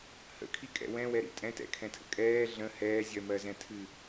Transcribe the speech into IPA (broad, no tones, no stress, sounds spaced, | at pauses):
h ə̰ kʰ i kʼ ɛ̰ w ɛ̃ w ɛ ɾ ḭ tʼ ɛ̃ t ɛ̰ kʰ ɛ̃ tʰ ə̰ kʼ ɛː ɮ ə̃ h ɛː zʲ ɜ m ɜ z ɛ̃ tʰ ɨ